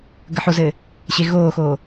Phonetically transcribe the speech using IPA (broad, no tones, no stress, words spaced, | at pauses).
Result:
ɡəħozɘː | ɕeɣoːxoː